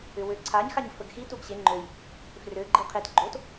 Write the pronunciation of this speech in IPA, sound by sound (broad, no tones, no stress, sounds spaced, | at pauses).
ʏ w ø ǀʰ a ɲ x a ɲ f ə ɡ x i t u ɡ ɕ e ŋ͡ǃ ø j | f r ø ɡ͡ǃ i qʰ e t ɡ͡ǃ o t